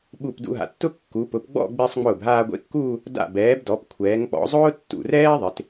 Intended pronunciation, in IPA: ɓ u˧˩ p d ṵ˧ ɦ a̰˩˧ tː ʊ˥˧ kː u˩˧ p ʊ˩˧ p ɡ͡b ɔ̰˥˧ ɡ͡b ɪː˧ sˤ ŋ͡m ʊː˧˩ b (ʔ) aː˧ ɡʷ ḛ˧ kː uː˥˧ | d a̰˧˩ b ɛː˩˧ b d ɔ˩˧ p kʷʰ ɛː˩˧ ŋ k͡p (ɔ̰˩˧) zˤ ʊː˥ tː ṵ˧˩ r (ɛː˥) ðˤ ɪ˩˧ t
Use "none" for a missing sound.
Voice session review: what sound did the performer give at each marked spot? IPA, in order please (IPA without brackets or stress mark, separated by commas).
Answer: ɦ, ɔ̰˩˧, ɛː˥